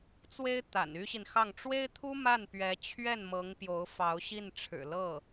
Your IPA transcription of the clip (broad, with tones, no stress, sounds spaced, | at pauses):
t͡s w e˥ ɪ̯ t̪ a̰˨˩ n y˥ ɕ i˨ n x ɑ˥˩ ŋ ʈ͡ʂ w e˥ ɪ̯ t̪ʰ u˥ m a˥˩ n p ɥ ɛ˧˥ t͡ɕʰ ɥ ɛ˥˩ n m ɤ˧˥ ŋ p j o˧˥ ʊ̯ f ɑ˧˥ ʊ̯ ɕ i˥˩ n ʈ͡ʂʰ ɻ̩˨˩ l ɤ˥˩